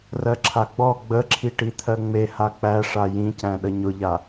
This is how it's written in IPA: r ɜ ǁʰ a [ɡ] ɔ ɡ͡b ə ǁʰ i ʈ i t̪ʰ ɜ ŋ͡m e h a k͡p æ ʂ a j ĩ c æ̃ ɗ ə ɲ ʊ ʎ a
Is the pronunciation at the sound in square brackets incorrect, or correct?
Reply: incorrect